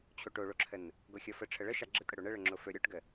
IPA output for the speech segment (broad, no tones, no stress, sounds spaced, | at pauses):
t͡ɕʰ o ʈ o ɭ o ǁʰ ə n | ɡ o xʲ ɔ f ə ʈ͡ʂʰ ə ɭ ə ʃ a ɡ͡ǁ ə tʼ ə ɽ o ɳ ə ɭ ə ŋ͡ǁ o f ɵ ɾʲ ɔ ʈ ɡ ə